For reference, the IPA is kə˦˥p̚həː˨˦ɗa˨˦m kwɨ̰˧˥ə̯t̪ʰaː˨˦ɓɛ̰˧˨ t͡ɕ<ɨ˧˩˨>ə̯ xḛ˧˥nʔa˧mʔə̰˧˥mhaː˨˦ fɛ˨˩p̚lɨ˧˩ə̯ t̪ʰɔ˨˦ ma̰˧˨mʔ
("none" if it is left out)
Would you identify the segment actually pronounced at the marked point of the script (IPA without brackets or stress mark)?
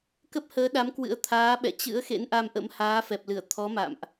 ɨ̰˧˥